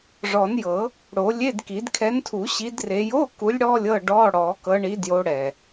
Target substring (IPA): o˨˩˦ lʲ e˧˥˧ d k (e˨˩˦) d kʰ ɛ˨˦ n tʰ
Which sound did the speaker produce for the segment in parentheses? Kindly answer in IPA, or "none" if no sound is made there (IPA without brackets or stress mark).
i˨˩˦